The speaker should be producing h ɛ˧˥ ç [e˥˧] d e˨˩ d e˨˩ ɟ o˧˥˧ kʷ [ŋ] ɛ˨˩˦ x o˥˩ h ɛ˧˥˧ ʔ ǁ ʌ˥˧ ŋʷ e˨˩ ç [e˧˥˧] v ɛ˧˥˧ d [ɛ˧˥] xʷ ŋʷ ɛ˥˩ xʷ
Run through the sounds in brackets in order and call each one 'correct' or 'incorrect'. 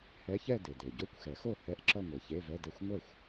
incorrect, incorrect, correct, incorrect

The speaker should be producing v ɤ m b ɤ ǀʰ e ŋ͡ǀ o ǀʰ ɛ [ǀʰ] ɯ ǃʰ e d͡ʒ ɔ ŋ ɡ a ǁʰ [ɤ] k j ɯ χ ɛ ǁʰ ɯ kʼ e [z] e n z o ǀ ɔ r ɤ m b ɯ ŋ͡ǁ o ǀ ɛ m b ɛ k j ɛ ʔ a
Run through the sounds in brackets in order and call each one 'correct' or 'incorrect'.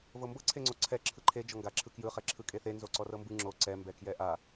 incorrect, incorrect, incorrect

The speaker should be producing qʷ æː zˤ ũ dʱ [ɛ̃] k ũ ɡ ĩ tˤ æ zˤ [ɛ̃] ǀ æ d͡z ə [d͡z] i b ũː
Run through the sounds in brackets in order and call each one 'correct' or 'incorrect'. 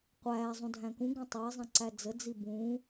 incorrect, correct, correct

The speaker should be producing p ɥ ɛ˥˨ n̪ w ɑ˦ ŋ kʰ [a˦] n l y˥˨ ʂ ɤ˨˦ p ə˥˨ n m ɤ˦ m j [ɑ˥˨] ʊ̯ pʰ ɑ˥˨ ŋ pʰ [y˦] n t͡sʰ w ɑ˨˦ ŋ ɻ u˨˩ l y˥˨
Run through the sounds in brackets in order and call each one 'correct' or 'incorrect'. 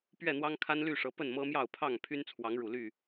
correct, correct, correct

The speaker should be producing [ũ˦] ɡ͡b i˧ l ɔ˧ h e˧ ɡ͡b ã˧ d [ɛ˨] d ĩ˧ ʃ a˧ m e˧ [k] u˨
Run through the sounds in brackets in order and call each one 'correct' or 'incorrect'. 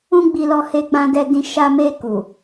correct, incorrect, correct

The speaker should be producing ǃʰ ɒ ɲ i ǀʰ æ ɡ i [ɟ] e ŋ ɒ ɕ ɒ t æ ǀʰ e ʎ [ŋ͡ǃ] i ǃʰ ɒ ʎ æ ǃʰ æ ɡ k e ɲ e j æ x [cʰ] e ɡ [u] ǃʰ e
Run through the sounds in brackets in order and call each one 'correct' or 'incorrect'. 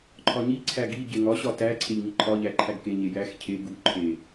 correct, incorrect, correct, correct

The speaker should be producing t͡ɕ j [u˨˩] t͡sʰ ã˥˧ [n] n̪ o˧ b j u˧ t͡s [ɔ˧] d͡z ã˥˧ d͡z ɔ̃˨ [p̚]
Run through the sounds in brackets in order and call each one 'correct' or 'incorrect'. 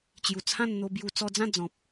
correct, correct, correct, correct

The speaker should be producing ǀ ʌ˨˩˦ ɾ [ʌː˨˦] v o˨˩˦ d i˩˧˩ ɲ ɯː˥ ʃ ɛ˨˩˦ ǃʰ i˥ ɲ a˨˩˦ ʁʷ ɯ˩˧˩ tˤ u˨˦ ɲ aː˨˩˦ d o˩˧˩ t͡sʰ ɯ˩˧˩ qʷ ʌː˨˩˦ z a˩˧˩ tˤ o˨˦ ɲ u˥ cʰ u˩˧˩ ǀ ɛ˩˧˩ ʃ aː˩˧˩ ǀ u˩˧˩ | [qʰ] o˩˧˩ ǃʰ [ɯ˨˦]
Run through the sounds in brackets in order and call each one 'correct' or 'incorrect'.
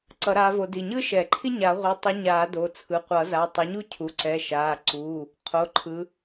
incorrect, correct, correct

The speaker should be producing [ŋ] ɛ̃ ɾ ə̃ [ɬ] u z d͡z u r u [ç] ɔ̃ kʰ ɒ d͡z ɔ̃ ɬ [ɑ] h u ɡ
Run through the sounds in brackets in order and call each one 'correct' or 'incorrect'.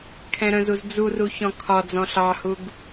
incorrect, incorrect, correct, correct

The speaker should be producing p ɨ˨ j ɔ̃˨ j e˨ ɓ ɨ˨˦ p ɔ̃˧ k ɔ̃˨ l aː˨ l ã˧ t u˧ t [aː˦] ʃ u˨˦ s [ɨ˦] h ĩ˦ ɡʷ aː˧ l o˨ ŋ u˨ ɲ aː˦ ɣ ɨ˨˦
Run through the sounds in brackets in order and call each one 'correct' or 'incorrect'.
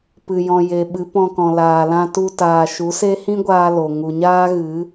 incorrect, incorrect

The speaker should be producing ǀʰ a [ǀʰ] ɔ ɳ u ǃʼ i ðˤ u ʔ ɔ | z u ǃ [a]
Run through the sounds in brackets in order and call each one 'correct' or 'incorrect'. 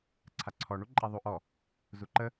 correct, incorrect

